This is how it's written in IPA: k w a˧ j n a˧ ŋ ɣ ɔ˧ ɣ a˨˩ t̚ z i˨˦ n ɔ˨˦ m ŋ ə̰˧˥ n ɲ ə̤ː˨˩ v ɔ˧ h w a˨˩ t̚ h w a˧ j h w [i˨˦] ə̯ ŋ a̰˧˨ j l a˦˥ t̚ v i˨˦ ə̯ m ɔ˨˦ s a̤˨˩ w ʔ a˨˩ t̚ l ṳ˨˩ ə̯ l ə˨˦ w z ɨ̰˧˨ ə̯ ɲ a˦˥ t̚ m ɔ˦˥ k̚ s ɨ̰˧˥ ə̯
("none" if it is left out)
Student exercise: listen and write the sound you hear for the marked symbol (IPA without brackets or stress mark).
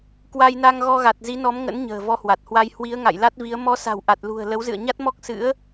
i˨˦